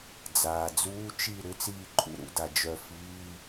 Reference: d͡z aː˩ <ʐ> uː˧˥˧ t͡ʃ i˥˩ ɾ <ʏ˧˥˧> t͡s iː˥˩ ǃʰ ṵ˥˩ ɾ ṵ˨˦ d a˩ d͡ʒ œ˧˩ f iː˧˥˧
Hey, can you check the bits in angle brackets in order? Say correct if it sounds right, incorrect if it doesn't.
incorrect, correct

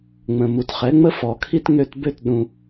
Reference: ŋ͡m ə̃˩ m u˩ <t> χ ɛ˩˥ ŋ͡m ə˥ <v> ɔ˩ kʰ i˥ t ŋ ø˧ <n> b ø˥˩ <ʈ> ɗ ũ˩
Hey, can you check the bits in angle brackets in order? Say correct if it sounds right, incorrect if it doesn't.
correct, incorrect, incorrect, incorrect

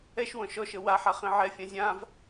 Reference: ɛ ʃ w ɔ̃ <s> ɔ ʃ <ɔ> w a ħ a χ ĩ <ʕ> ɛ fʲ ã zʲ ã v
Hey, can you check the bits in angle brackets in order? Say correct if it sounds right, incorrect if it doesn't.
incorrect, incorrect, correct

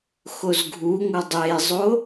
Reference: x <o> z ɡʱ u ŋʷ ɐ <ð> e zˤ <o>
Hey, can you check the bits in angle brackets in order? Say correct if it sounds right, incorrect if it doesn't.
correct, incorrect, correct

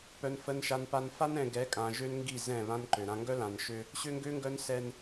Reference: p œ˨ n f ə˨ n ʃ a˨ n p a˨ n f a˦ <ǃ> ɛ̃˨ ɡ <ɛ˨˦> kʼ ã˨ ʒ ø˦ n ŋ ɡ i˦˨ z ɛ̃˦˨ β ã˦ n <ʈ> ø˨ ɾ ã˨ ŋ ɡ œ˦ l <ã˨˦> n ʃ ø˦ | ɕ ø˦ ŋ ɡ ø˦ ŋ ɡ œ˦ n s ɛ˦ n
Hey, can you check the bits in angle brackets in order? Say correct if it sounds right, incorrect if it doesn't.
incorrect, correct, incorrect, incorrect

